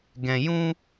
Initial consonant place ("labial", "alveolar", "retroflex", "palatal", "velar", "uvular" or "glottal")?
velar